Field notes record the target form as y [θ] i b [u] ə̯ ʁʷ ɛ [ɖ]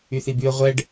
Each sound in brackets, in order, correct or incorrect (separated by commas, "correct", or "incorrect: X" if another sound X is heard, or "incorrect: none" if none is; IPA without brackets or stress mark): correct, incorrect: y, correct